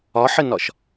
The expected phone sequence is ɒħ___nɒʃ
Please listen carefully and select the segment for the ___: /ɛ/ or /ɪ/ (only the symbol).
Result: ɪ